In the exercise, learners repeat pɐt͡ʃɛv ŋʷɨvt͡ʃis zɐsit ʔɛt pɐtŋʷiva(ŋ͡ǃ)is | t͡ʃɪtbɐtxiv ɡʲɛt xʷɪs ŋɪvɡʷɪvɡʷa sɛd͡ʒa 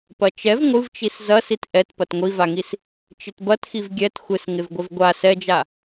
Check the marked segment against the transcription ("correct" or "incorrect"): incorrect